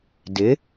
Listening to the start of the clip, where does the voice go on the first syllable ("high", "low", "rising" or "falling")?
rising